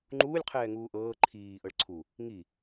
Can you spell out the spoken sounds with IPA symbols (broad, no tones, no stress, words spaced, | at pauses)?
ŋ͡ǃuːlʲ qʰɛːŋuːʔɤː ǃʰiː ʔɤɭǀʰu | ŋi